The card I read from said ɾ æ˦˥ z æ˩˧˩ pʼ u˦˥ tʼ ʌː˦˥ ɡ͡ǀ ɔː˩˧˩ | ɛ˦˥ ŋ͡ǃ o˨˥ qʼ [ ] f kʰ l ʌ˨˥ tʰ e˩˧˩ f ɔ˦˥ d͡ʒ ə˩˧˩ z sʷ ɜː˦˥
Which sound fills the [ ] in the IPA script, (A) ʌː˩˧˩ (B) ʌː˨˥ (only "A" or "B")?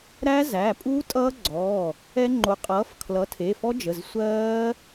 B